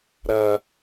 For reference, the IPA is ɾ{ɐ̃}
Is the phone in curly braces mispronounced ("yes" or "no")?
yes